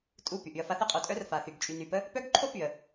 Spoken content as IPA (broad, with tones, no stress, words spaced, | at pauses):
tʼu˦˨py˨ʔy˧ə̯ fa˧θə˦qʼo˨ tʼœ˦r fa˨θy˨ɡ t͡ʃʼy˨ny˨pə˦ | pœ˦ɡǃʰo˦py˨ə̯